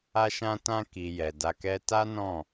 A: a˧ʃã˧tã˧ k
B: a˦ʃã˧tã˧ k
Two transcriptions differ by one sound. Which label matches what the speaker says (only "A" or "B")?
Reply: A